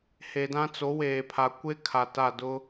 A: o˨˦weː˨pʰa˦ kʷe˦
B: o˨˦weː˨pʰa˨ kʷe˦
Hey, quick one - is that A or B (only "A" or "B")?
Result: B